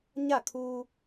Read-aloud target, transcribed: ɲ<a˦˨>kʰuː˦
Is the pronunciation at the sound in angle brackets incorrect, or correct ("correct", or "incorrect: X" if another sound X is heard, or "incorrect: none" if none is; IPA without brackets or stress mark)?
correct